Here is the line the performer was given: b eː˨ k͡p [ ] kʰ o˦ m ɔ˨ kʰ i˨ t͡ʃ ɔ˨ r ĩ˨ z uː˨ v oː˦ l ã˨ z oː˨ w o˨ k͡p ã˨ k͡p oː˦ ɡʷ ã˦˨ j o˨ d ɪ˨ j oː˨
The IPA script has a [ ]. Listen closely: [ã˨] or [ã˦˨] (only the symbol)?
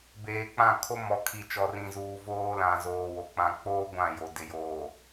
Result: ã˦˨